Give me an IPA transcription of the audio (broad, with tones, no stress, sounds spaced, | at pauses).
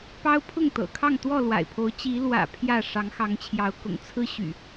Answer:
p ɑ˦ ʊ̯ pʰ ʊ˥˨ ŋ t̪ ɤ̰˨˩ kʰ ɑ˥˨ ŋ t̪ w ɔ˥˨ l w a̰˨˩ ɪ̯ pʰ o˨˦ ʊ̯ t͡ɕ i˨˦ l w ä̰˨˩ pʰ j ä˥˨ ʂ ɑ˨˦ ŋ x ɑ˨˦ ŋ t͡ɕʰ j ɑ˨˦ ʊ̯ k ʊ̰˨˩ ŋ t͡sʰ ɹ̩˦ ɕ y̰˨˩